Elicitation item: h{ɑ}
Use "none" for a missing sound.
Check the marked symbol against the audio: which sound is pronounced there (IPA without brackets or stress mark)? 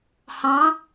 ɑ̃